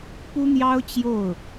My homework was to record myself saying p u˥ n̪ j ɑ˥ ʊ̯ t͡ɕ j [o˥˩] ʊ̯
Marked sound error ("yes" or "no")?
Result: no